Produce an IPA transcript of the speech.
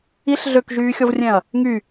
i ɬ ɮ ø k ʒ yː xʲ ɔ v rʲ ɛ̃ ɐ̯ | ŋ y

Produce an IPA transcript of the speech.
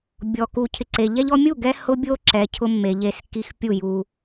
bʲ ɔ˨ k u˨ cʰ ɪ˨ ǀ e˨ ʎ ɛ˦ ʎ ɔ˦ mʲ u˥˨ ɡ ɛ˦ h ʊ˦ bʲ o˦ ǁ ɛ˨ cʰ ʊ˦ mː e˨ ʎ e˦ s k i˦ x pʲ u˥˨ j u˦

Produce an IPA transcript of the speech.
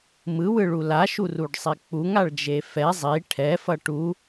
m ɯ w ɯ ɭ u l a ʃ u r u ɖ sˤ i k͡p u ŋ a ɭ d͡ʒ e f ɛ zˤ i ʈʰ ɛ f ʌ ʈ u

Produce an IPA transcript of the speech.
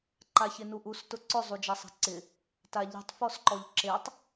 ǃ a ç ɪ n u ʔ u s t ʊ ǀ ʊ zˤ u d͡ʒ a sˤ a̤ ǀ ɪ | t a ʎ i̤ tˤ f ɔ s ǃ ɔ ʎ ǁ e tˤ

